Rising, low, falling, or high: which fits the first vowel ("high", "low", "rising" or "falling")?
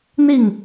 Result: falling